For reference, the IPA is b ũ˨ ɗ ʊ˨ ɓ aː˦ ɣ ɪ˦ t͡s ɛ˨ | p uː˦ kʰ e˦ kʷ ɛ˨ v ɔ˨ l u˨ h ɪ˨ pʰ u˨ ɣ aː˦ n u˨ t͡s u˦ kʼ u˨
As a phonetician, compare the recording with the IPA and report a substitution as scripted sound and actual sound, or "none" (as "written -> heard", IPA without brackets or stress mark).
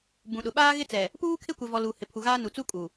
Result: none